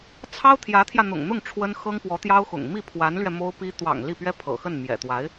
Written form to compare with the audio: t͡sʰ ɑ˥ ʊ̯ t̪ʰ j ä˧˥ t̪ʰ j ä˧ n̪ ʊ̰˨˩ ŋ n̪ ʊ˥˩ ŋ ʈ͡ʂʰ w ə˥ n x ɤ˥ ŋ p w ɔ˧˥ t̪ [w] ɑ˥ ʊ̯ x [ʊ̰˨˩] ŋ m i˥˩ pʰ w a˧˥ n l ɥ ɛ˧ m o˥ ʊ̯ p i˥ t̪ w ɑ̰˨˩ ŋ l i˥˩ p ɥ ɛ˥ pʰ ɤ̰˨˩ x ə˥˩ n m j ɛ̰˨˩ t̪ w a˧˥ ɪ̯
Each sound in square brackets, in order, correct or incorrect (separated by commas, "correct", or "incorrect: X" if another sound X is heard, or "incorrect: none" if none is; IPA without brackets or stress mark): incorrect: j, correct